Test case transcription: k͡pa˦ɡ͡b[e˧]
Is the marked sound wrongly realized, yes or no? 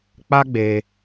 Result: no